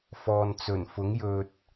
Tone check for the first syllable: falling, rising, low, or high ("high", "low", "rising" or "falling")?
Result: low